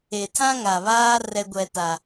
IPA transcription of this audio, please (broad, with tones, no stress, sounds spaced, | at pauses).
e˨ tʰ ã˦ ŋ a˨ β aː˦ r ɛ˦ ɡʷ ɛ˦ t a˦